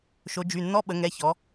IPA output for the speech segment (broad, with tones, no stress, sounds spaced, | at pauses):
ʃ o˩˧ d͡ʒ y˩˧˩ nː ɔ˧˥˧ ɓ ə˩˧ ŋ ɛ˩˧˩ ç ɔ˩˧